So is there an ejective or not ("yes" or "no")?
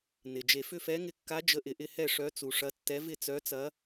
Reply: no